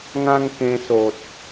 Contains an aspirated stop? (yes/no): no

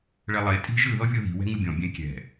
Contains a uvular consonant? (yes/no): no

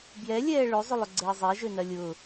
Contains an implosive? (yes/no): no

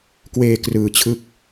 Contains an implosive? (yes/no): no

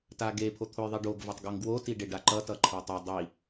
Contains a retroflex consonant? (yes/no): yes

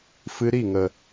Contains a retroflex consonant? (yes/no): no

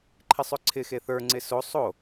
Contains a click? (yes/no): yes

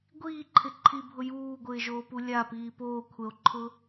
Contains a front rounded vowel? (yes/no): no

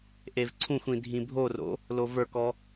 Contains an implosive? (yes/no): no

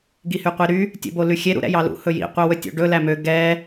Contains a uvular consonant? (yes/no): yes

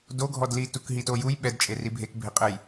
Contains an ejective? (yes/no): yes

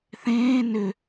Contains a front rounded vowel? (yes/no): yes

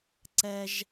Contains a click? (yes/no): yes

